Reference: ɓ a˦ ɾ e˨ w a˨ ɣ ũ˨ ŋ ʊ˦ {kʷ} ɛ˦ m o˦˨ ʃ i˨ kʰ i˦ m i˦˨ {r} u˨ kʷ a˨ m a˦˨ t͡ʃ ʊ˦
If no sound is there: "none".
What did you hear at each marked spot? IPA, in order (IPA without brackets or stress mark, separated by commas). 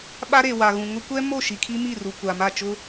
kʷ, r